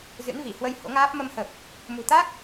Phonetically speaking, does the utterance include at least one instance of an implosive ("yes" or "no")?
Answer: no